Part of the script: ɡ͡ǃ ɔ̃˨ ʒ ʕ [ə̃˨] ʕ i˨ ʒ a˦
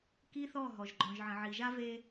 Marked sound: correct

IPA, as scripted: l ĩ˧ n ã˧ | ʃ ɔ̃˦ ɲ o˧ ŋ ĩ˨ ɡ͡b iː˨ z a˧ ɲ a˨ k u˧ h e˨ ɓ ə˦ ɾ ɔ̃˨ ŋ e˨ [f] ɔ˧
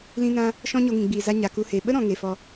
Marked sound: correct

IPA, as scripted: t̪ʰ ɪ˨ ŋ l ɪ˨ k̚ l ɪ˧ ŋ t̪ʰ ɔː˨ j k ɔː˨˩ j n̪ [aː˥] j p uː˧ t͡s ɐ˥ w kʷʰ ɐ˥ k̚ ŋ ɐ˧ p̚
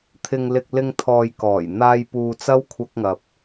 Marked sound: incorrect: aː˧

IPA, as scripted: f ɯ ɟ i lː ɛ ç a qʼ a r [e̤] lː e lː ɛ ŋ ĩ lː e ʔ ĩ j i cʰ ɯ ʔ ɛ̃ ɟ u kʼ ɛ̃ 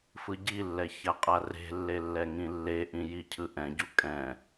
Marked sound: correct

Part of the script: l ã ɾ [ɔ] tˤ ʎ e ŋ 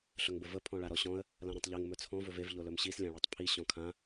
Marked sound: incorrect: ɔ̃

